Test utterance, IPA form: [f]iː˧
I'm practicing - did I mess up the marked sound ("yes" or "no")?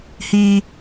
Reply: yes